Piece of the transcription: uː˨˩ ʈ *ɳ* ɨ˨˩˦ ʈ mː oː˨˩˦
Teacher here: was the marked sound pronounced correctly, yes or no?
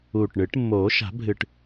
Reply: yes